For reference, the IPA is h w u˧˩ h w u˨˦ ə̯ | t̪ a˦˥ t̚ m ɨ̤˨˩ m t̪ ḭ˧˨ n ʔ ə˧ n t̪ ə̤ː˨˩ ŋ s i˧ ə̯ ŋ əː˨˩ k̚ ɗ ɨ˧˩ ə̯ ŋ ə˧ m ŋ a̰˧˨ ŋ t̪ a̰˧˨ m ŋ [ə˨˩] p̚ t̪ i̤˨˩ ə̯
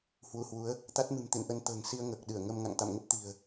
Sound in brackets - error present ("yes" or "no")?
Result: yes